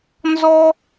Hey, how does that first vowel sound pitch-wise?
high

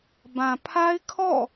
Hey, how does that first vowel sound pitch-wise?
low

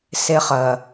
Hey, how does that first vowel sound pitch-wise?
high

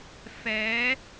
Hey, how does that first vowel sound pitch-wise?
rising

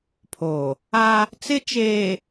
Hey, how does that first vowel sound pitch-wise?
low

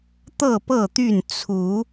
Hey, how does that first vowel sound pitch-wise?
falling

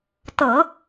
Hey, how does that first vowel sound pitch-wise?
low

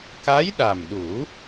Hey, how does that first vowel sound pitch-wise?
rising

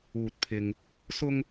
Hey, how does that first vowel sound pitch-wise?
low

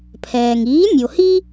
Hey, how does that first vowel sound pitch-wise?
low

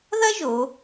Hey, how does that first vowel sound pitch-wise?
high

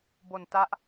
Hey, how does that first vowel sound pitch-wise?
low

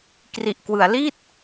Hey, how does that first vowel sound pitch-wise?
low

